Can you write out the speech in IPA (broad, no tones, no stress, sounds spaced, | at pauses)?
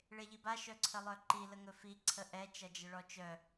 ɭ e ʎ i b a ʃ œ ǀʰ ə lˠ œ ǃ i l ə ŋ ɵ f i ǀʰ ə ʔ ɛ t͡ʃ ʌ d͡ʒ ə ɭ ɔ t͡ʃ œ